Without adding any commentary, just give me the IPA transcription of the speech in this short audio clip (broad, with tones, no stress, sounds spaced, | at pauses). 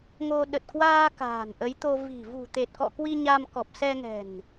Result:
ŋ o˧ ɗ ə˨˩ t̚ k w aː˧ k a̤ː˨˩ n ʔ ə˨˦ j t̪ o˧ v i̤˨˩ v ṳ˨˩ t̪ e˨˩ t̚ k ɔ̰˧˨ k w i˧ ɲ a˧ m k ɔ˨˩ p̚ s ɛ˧ ŋ ɛ̤˨˩ n